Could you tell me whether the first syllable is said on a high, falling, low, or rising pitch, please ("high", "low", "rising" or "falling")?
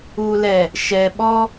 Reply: low